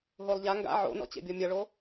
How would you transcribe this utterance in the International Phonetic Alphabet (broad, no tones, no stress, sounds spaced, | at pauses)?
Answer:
ɦ o lˠ ʎ a ŋ ɡ a̰ ʕ o̰ n ɔ̰ t͡ɕ ḛ bʲ ɔ mʲ ʌ ɭ o